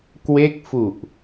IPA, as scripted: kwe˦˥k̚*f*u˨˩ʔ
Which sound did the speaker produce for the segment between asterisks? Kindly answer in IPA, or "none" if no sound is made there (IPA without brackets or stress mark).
f